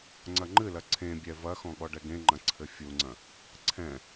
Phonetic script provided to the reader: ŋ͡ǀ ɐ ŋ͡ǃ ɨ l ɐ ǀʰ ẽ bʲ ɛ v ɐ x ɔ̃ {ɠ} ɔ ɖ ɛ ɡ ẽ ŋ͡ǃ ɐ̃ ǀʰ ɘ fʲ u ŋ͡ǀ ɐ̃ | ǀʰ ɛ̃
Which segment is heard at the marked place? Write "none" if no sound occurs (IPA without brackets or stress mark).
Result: ɠ